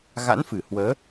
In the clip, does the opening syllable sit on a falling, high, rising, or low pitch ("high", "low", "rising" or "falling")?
rising